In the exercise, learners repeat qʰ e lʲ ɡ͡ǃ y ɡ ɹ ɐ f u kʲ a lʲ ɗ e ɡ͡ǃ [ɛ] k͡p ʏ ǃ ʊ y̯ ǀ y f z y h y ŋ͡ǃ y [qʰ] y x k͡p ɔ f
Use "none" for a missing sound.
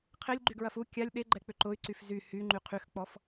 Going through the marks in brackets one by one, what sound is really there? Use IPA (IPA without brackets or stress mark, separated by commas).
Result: ɛ, qʰ